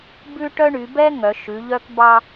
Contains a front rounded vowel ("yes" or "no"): yes